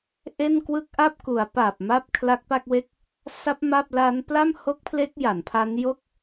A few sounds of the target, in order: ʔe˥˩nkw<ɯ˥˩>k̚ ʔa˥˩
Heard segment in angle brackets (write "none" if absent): ɯ˥˩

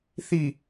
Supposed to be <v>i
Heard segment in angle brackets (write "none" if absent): θ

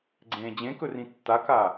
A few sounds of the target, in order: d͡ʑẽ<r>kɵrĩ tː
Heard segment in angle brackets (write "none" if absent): none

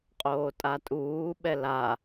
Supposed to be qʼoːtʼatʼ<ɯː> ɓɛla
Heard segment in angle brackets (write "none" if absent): uː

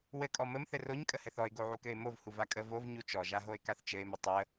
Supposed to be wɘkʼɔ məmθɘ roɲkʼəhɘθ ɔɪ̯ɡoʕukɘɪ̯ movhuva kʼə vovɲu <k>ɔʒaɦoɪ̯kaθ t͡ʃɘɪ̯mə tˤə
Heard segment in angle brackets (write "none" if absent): t͡ʃ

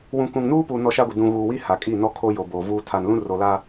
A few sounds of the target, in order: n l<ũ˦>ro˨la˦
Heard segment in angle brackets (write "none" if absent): ũ˦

